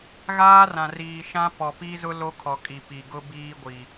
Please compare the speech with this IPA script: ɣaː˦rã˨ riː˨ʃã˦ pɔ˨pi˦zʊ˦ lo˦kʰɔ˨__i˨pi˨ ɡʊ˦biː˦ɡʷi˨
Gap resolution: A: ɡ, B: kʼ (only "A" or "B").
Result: B